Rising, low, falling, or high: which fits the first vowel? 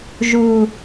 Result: low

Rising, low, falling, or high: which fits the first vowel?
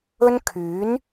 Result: high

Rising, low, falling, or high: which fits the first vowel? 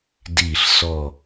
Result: falling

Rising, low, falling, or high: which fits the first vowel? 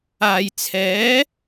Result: low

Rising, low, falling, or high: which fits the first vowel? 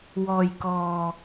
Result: low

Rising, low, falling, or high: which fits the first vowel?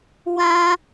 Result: high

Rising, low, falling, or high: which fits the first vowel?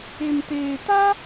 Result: low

